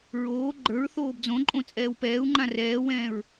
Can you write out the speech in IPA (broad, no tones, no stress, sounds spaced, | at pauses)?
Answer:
ɹ oː ɡ͡ǃ ə˞ ɹ θ oː b d͡z õ ǃʼ õ t͡sʼ ɛː w p ɛː u̯ ŋ͡ǃ ã r ɛː w ɛ̃ː ɹ